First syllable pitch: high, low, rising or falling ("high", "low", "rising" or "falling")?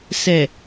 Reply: low